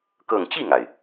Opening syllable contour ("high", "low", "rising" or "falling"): falling